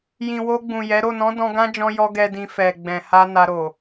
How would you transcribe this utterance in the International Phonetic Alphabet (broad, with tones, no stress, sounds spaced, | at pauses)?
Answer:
j ĩ˨ w o˧ ɡ͡b ũ˨ j ɛ˨˦ ɾ o˦˨ n ɔ̃˨˦ d ɔ̃˧ ɡ ã˦ d͡ʒ ɔ̃˧ j ɔ˦ ɡ ɛ˧ d ĩ˧ f ɛ˨ ɡ͡b ɛ̃˨ h a˧ n a˧ ɾ o˨